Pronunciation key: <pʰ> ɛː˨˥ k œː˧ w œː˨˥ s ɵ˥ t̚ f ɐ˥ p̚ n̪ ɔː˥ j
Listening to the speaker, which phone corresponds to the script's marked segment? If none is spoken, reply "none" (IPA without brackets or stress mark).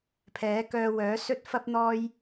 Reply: pʰ